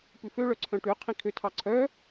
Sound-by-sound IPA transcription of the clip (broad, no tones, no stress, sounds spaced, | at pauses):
p ʉ f ø ɭ œ ǀʰ œ̃ ʈ ʉ qʰ ĩ kʰ ø tʰ ɑ ǀʰ œ